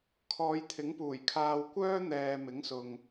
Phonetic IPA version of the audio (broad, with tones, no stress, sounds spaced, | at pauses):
kʰ ɔː˨˧ j t̪ʰ ɪ˨˥ ŋ p uː˨˩ j kʰ aː˧ w kʷ œː˥ n̪ ɛː˨ m ɪ˨˥ ŋ s ʊ˨ ŋ